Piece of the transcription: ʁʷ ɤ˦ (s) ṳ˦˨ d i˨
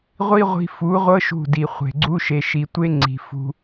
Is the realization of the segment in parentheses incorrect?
yes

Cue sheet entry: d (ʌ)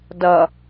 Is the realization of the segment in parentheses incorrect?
no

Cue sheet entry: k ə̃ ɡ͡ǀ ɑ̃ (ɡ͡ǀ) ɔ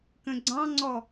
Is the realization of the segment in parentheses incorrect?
yes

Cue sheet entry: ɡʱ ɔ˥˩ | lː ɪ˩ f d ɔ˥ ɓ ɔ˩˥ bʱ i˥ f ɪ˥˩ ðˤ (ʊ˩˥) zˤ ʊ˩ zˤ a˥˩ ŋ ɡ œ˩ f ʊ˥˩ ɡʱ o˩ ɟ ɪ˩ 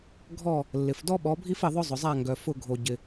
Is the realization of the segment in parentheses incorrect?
yes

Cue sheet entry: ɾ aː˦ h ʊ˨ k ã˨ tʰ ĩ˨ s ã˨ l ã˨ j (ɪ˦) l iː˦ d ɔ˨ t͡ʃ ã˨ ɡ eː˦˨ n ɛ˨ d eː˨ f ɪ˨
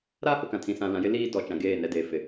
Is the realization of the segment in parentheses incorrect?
no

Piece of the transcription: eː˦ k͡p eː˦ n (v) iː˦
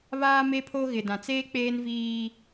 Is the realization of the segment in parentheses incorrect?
no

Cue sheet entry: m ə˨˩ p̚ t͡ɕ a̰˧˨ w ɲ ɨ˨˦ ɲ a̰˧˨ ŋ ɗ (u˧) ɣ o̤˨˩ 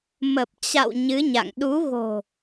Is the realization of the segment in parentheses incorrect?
yes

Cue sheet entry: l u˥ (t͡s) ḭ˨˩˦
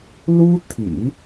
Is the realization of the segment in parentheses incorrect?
yes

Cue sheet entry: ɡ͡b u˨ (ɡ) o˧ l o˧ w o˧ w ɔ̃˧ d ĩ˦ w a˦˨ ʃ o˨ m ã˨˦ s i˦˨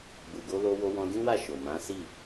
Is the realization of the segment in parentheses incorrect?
no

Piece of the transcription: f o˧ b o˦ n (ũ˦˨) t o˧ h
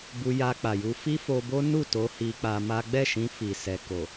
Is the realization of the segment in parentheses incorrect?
yes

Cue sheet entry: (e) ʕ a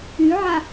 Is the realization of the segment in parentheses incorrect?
yes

